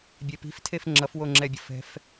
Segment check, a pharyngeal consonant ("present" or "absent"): absent